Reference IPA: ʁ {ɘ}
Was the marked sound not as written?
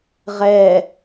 yes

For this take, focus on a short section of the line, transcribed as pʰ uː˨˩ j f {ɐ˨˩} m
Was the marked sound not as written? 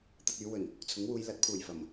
no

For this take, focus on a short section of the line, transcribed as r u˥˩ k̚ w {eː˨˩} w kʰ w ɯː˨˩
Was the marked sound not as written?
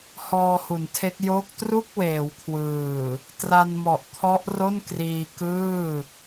yes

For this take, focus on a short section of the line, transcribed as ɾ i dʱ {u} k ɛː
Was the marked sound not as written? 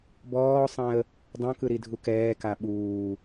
no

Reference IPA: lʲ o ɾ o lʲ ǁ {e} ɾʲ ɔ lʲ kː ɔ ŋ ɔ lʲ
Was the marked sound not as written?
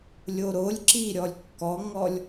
yes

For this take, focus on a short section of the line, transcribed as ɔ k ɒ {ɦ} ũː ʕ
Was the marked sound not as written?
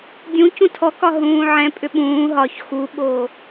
no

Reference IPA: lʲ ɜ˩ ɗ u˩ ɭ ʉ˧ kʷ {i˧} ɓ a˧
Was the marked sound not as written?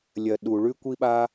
no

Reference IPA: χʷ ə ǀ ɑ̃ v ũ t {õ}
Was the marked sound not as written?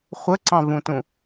yes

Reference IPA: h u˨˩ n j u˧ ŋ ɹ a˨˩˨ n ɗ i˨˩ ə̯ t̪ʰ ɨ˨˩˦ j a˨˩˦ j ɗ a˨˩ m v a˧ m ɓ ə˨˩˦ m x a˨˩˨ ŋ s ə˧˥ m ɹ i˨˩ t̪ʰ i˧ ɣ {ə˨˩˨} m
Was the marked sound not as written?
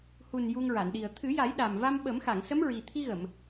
no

